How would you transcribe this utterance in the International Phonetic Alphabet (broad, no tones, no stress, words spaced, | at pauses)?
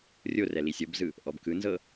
rʲorɛ lisʲɤbzɯ | ʔɔbkɯnzɤ